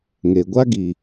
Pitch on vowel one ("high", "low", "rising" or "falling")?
low